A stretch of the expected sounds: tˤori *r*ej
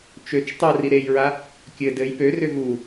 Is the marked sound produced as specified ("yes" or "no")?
no